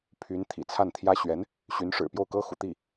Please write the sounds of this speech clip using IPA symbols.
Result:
pʰ y˧˥ n t̪ʰ ḭ˨˩ t͡sʰ a˥˩ n t̪ʰ j ä˥ ɕ ɥ ɛ˧˥ n | ɕ y˧˥ n ʂ ɻ̩˨˩ p j o˥˩ ʊ̯ k ɤ˥ x ṵ˨˩ t̪ i˥˩

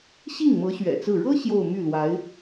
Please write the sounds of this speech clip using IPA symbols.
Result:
ɕ i˥˩ ŋ m ɤ˧˥ ɕ ɥ ɛ̰˨˩ t͡s ɹ̩˥˩ ɻ ɤ˥ ɕ j o˥˧ ʊ̯ m y˥˩ l w a˧˥ ɪ̯

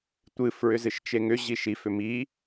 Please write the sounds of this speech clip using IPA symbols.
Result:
tʷ ɨ f ɹ ʏ z ɨ ʃ t͡ʃ e ŋ ʏ ʑ i ʃ i f ʏ m i

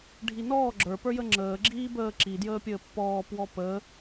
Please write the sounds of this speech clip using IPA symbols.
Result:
ɖʱ i n ɔː ɡ͡ǁ ə˞ p ə˞ j ə ŋ͡ǁ əː ɡ͡ǁ iː b əː ǁ i d j əː pʲ əː pː ɔː p w ɔ p əː

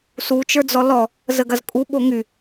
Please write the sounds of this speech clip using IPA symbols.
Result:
s u t͡ʃ ə˞ d͡z ɔ l ɔ | z ə ɡ ɐ z kʼ u ɓ o ŋ y

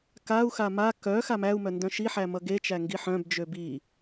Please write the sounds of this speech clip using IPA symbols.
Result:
k a u̯ x a m a k œ x a m æ u̯ m œ n d œ̃ ʃ i ħ æ m ʌ ɡ e t͡ʃ æ ŋ ɡ i ħ œ̃ b d͡ʒ ø b i

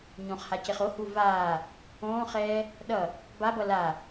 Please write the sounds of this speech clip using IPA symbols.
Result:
ɲ õ χ h a c e χ o h u v aː | õː χ ɛː | ɗ ʌ | b a b ʌ l a

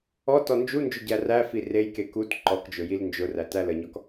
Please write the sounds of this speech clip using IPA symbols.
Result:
ɔ t ɔ n d͡ʒ u n d͡ʒ ʊ ɟ æ r æ f i r e j k e k u t ǃ ɔ k d͡ʒ ʊ j i l n d͡ʒ ʊ r æ t æ l ə ɲ ɔ k

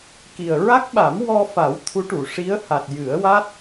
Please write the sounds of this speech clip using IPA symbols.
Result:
k i˨˩ ə̯ ɹ a˦˥ k̚ ɓ a˨˩˦ m w ɔ˧ f a˨˩˦ w t̪ʰ u˧˥ ʈ u˨˩˨ ʂ i˧˥ ə̯ h a˨˩ t̚ j ɨ˨˩˦ ə̯ w a˦˥ t̚

